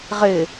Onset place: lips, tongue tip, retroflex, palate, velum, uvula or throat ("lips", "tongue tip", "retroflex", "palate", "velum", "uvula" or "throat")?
uvula